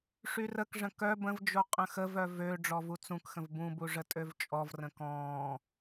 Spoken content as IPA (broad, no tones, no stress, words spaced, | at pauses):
ʂyrəkʐə̃ kœ bə̃vd͡ʒo qʼə̃xəvœ vø ɖ͡ʐɔvut͡sũkxə̃v bũbu ʐətʼøvt͡ʃʼɔvrə̃ kɔ̃ː